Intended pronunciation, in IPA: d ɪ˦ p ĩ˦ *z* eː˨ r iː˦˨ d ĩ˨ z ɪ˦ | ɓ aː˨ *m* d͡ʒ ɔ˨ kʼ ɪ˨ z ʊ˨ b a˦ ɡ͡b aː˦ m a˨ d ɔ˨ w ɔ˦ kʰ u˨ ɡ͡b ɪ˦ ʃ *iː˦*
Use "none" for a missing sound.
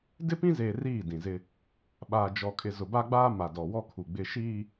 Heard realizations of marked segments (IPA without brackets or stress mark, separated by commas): z, none, iː˦